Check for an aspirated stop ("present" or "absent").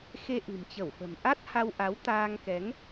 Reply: absent